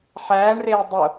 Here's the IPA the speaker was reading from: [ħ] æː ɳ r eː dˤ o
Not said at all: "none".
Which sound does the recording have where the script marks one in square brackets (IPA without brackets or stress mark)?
ħ